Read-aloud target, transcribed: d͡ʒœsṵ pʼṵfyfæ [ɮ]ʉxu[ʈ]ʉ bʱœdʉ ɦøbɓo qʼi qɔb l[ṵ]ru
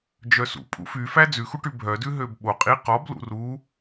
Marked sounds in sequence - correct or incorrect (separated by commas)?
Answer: incorrect, correct, correct